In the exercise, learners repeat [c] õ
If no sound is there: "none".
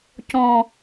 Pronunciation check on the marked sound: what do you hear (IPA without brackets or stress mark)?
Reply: c